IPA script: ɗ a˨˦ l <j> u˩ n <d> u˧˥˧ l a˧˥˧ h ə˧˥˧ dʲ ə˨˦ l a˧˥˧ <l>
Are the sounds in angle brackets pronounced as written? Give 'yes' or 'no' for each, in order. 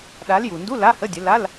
yes, yes, yes

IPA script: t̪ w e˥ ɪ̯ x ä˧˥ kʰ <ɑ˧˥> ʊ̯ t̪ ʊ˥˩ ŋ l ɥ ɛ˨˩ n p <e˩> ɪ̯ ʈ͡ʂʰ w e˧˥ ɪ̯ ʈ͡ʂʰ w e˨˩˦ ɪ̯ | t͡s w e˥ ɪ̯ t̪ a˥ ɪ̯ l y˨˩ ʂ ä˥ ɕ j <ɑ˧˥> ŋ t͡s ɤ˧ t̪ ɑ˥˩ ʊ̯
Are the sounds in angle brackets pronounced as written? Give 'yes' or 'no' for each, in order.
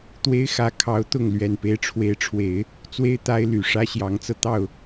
yes, no, yes

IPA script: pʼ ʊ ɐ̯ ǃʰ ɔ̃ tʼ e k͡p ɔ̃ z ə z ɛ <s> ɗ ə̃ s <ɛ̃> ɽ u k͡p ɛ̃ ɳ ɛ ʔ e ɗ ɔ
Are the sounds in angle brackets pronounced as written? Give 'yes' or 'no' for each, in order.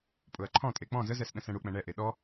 yes, yes

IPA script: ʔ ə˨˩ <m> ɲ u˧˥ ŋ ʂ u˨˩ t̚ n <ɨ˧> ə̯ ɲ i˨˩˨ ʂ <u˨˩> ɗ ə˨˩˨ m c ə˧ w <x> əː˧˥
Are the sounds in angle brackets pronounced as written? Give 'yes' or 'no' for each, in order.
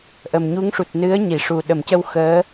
yes, no, yes, yes

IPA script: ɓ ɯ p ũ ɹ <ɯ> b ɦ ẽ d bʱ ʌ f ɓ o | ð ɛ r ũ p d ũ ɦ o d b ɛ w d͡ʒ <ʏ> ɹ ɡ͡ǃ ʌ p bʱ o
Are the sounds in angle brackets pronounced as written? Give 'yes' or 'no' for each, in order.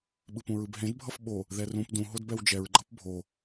yes, no

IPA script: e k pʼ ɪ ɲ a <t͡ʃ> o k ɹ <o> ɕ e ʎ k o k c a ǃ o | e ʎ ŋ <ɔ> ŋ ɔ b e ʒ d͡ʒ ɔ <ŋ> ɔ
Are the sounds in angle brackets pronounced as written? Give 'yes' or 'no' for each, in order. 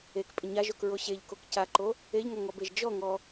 no, yes, yes, yes

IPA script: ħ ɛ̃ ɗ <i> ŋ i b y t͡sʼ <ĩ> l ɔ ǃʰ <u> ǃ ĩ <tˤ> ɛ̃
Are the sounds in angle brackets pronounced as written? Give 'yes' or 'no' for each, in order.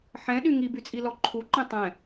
no, no, yes, yes

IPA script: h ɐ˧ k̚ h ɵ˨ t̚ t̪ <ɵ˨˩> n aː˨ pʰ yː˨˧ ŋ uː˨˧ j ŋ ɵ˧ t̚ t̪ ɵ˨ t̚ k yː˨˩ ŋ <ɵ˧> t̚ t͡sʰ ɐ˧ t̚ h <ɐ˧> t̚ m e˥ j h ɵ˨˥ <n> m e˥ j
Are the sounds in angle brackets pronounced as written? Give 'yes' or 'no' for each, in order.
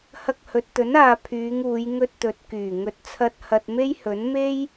no, no, yes, yes

